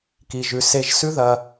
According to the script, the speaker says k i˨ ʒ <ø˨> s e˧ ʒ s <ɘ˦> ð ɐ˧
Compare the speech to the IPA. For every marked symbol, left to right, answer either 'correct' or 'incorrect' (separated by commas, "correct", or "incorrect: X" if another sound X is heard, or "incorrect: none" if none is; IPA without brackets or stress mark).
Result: incorrect: ʉ˨, incorrect: ʉ˦